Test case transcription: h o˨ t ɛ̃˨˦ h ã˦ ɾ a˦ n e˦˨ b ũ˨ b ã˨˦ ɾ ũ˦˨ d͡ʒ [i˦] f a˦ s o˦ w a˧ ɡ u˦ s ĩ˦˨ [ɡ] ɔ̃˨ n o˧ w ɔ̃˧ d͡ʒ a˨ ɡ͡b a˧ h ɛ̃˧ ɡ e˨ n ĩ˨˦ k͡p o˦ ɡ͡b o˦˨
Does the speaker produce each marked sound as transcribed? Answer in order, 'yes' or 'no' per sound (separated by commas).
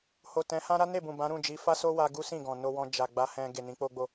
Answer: no, yes